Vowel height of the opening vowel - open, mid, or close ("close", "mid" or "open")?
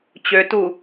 mid